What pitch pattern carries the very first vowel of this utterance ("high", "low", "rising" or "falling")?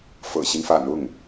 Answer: low